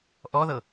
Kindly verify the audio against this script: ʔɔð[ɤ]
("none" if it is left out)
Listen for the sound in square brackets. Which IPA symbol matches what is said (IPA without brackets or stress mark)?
ɤ